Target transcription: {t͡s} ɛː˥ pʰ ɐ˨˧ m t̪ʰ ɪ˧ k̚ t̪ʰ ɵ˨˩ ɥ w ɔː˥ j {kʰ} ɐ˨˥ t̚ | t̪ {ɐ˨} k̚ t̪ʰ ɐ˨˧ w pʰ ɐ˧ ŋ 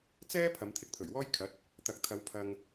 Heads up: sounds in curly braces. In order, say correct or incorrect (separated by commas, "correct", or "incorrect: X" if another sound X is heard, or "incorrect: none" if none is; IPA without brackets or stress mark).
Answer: correct, correct, correct